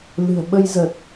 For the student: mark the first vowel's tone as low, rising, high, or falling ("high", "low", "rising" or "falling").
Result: low